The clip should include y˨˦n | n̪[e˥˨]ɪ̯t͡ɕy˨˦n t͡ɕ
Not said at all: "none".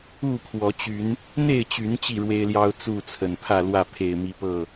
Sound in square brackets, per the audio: e˥˨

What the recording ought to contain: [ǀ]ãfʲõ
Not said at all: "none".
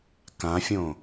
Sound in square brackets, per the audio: k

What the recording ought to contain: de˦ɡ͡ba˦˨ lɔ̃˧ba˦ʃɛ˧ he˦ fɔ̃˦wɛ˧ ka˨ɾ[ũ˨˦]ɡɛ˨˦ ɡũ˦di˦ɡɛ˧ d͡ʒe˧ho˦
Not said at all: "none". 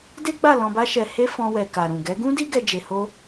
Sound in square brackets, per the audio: ũ˨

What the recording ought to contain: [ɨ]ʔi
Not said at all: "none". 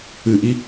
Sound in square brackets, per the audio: ɨ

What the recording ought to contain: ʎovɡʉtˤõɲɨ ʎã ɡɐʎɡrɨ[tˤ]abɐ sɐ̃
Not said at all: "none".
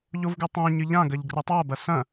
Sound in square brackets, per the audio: tˤ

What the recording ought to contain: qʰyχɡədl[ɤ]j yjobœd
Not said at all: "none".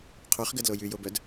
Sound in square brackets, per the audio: o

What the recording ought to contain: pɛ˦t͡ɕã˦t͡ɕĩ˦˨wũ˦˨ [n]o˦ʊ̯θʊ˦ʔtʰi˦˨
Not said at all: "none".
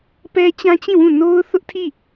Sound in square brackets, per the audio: n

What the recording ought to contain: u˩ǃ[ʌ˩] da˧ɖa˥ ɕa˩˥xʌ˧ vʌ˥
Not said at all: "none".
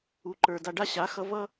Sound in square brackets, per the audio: ə˞˩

